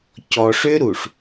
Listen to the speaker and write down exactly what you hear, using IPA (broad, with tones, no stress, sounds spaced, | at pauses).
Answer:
c ɔ˨ ʂ ʏ˦ ɾ u˨ ʂ